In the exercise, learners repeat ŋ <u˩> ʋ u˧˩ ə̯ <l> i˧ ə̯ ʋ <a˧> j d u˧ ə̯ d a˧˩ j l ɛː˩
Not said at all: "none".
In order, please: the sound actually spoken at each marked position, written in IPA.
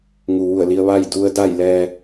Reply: u˩, l, a˥˨

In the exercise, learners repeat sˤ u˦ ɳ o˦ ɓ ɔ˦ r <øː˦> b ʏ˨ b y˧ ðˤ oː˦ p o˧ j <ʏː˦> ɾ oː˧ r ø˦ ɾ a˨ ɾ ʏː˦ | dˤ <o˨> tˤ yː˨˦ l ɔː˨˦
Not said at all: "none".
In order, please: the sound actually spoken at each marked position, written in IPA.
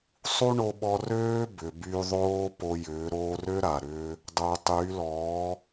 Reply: øː˦, ʏː˨˦, o˨

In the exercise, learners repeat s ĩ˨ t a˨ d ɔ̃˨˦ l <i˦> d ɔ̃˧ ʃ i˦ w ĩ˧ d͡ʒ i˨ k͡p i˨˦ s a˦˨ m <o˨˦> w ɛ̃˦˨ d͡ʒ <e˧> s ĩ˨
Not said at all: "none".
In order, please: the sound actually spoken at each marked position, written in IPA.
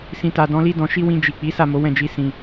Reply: i˦, o˨˦, i˧

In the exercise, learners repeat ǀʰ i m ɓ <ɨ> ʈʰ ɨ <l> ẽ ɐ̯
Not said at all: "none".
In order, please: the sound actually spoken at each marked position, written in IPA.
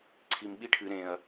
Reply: i, ɾ

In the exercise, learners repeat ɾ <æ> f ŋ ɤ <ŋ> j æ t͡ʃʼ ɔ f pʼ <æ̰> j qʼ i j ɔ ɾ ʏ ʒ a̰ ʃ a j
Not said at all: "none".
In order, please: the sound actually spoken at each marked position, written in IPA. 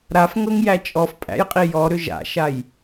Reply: a, ŋ, æ̰

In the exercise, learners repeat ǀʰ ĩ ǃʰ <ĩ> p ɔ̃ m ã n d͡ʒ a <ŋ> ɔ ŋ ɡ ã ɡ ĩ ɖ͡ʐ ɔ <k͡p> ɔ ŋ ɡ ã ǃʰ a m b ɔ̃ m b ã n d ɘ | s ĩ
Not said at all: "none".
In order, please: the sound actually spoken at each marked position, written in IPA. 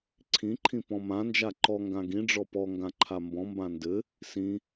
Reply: ĩ, ǃ, p

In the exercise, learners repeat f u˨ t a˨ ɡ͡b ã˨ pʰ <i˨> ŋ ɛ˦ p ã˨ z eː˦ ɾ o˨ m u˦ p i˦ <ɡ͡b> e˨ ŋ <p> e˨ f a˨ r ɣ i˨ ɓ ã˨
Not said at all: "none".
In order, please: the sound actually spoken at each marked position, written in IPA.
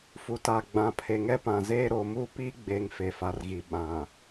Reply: e˨, ɡ͡b, f

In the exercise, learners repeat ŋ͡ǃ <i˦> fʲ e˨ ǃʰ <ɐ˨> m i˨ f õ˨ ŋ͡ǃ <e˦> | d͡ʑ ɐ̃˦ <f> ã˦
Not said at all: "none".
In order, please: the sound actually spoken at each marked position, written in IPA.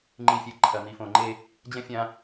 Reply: i˨, ɐ˨, e˦, fʲ

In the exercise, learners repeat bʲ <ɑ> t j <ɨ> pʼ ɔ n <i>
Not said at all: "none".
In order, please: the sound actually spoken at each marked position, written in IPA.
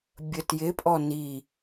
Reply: ə, ɪ, i

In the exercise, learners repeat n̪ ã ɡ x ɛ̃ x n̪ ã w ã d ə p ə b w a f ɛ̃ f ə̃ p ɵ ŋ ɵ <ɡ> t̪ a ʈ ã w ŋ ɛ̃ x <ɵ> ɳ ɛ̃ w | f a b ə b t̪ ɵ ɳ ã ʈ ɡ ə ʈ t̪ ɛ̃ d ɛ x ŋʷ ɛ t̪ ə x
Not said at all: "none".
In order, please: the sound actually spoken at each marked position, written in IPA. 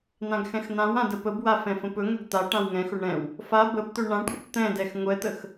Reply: ɡ, ɵ

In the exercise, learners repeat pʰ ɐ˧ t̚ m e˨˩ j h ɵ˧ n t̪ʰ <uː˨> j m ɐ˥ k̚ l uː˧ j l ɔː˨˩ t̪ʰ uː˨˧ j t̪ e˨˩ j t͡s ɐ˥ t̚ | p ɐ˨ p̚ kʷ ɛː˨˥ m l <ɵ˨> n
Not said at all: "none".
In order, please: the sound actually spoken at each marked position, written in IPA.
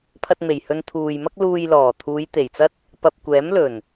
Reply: uː˨, ɵ˨˩

